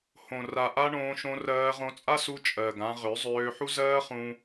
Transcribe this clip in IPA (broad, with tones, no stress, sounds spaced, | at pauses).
h õ˨ r a˨ ʔ a˦ ɳ õː˧ ʃ õ˧ r ɜː˧ ʁ õ˧ t͡sʼ a˦ s u˧ t͡ʃʼ ɜ˨ ɡ ã˧ ʁ ø˨˦ zˤ øː˧ ħ u˦ z ɜː˦ χ ũ˧